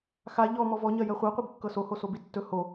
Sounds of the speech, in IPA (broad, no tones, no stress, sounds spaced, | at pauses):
x a ʎ ɔ m ɔ v ɔ ɲ ɜ j ɜ χʷ ɜ qʷ i b kː ɤ s o h o s o b i tː ɵ h o